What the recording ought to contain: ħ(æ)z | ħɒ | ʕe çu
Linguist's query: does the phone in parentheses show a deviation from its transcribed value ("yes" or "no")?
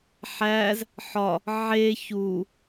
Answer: no